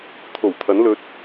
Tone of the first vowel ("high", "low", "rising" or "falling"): low